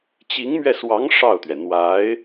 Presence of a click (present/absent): absent